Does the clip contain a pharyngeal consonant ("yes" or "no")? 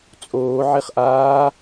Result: yes